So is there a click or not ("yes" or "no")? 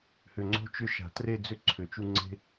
yes